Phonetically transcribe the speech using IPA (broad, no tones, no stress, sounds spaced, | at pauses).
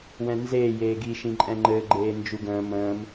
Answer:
w ɛ̃ n z eː j eː ɡ i ʃ ĩ ǃʼ ɛ̃ ŋ͡ǃ ɘ ɡ͡ǃ eː n d͡ʒ u ɡ ə̃ː m ə̃ː m